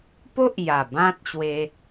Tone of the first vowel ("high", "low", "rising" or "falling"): high